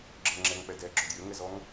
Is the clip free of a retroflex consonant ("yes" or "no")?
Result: yes